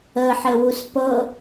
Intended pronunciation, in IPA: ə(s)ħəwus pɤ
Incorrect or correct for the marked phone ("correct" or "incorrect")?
incorrect